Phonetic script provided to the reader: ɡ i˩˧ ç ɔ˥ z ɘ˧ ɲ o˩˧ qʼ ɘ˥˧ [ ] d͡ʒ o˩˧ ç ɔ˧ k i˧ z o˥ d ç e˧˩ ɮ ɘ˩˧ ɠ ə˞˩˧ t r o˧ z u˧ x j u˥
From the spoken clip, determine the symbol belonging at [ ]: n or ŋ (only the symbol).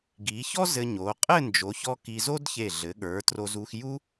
n